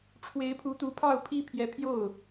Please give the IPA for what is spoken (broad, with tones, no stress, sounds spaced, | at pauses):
ʈ͡ʂʰ w e˧˥ ɪ̯ pʰ u˧˥ t̪ u˧˥ pʰ ɑ˥˩ ʊ̯ pʰ i˥ pʰ j ɛ˧˥ pʰ j o˥˩ ʊ̯